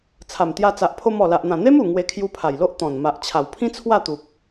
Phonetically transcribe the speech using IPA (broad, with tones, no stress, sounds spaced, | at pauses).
t͡sʰ a˨˩ m t̪ j a˧ t͡s a˨ ʔ pʰ o˧ m ɔ˨˩ l a˨ ʔ n̪ ã˨˩ n̪ e˦ m u˨˩ ŋ w e˧ kʰ j u˧ pʰ a˨˩ j l o˦ ʔ t̪ ɔ̃˨˩ n m a˨ ʔ t͡ɕʰ a˨˩ w pʰ ĩ˦ t͡sʰ w a˥˧ t̪ u˨ p̚